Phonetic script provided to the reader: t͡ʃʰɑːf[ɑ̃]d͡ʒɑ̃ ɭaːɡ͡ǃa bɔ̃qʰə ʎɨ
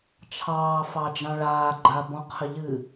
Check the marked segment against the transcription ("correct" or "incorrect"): incorrect